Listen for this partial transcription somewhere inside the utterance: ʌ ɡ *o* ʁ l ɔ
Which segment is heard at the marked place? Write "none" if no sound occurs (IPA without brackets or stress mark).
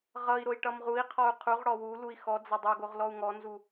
o